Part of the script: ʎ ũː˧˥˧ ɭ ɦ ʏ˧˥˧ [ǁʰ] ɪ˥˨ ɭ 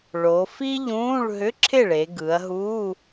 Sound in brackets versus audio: correct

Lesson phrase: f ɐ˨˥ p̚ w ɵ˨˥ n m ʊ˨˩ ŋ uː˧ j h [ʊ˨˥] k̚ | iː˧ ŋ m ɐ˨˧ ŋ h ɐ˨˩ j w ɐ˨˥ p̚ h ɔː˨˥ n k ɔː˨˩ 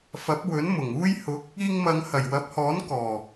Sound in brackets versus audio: correct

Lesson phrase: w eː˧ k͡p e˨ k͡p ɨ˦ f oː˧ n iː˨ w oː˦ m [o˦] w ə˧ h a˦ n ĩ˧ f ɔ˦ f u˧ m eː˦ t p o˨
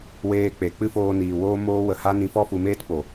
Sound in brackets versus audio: incorrect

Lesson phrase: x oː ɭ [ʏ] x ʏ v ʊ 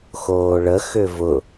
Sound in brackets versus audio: incorrect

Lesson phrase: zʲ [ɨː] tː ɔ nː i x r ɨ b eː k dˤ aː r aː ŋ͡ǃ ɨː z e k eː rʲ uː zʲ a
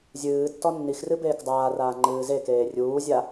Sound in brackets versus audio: correct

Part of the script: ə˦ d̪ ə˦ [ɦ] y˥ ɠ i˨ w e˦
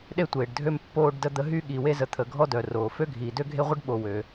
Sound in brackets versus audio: correct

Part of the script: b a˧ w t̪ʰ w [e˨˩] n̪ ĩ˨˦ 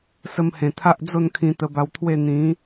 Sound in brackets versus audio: incorrect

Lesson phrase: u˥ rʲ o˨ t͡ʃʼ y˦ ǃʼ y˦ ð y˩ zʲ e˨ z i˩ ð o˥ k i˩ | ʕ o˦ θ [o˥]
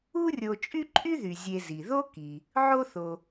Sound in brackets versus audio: incorrect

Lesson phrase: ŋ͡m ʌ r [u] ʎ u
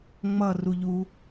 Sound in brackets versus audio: correct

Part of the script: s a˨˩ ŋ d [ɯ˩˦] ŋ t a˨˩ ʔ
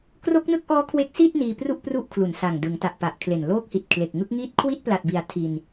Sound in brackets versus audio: correct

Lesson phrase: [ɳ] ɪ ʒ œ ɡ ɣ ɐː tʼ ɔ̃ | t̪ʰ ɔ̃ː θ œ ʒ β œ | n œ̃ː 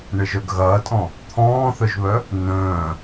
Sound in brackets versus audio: correct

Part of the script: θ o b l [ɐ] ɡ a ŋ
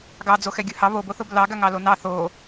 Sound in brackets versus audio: incorrect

